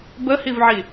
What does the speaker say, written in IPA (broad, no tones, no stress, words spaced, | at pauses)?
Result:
bəhivʕi